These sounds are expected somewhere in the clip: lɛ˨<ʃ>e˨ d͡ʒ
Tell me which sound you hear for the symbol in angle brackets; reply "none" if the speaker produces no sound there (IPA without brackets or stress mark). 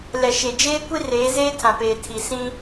ʃ